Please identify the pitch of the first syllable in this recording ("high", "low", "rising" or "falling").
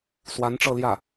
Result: rising